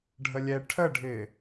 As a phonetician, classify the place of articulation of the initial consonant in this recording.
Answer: retroflex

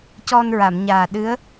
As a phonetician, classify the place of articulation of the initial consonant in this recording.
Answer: palatal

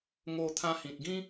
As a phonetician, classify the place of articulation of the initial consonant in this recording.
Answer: velar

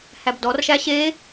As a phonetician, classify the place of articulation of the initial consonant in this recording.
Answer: glottal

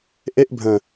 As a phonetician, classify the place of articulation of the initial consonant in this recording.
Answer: glottal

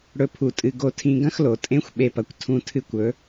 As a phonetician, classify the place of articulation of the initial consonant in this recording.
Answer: retroflex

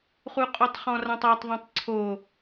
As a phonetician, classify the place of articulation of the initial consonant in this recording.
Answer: uvular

